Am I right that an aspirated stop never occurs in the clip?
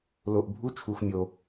no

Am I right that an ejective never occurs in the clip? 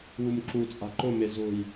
no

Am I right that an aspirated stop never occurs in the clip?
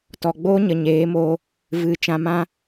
yes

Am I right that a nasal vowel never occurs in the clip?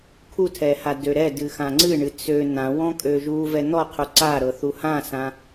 no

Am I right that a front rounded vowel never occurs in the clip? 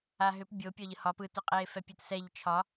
no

